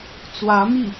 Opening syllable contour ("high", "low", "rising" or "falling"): rising